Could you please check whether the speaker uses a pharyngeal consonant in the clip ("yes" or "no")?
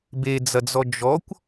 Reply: no